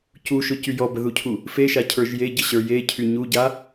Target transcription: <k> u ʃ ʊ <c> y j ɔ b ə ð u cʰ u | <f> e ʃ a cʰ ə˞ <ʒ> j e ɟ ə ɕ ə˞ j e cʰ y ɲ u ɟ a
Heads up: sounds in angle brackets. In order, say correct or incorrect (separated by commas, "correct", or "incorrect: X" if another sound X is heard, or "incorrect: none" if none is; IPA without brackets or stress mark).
incorrect: c, correct, correct, correct